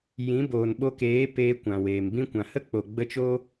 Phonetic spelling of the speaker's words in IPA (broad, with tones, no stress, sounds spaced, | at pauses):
j ĩ˨˦ b oː˨ n ɓ o˧ k eː˨˦ p eː˧ kʷ ã˨ w eː˨ m b ĩ˦ kʷ ã˨ h ə˦ k͡p o˨ ɡ͡b ə˧ t͡ʃ o˦